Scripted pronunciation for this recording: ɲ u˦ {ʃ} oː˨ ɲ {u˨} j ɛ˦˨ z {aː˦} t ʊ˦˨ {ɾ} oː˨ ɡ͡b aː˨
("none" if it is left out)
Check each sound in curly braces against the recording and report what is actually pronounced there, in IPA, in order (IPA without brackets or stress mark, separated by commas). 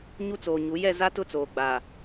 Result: t͡s, u˨˦, a˦, t͡s